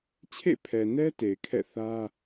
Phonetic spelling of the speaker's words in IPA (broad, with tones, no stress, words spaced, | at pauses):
t͡ɕʰḛ˦˨pʰɛ˨nɛ˦ te˨ɪ̯kʰɛ̰˦˨ θä˦